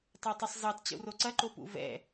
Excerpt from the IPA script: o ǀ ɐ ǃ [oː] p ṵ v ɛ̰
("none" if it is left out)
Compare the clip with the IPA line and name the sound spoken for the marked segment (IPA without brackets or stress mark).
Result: o